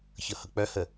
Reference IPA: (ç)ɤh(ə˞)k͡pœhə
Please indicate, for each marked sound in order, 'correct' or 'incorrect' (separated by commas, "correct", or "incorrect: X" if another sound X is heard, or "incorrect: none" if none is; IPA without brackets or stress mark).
correct, incorrect: ɤ